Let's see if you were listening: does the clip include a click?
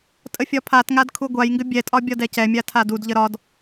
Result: no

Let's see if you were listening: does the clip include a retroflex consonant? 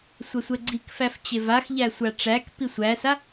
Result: yes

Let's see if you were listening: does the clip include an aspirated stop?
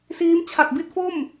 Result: yes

